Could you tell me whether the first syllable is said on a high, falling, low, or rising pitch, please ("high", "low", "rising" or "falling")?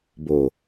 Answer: low